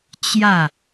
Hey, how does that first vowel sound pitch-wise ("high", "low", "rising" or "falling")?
falling